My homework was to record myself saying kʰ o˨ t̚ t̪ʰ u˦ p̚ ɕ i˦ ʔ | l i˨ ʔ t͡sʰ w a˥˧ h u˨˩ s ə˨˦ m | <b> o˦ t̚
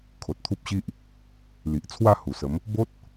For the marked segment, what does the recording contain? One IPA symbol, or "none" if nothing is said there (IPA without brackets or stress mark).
b